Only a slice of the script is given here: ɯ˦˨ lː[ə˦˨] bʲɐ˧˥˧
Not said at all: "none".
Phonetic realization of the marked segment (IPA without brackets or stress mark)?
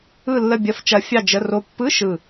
ə˦˨